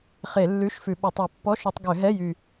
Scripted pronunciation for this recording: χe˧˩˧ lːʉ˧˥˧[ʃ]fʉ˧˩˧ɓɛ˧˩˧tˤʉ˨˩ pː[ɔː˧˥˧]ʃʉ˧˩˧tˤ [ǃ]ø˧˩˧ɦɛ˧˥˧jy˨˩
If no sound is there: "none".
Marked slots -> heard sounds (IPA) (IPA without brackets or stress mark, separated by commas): ʃ, ɔ˧˥˧, ɡ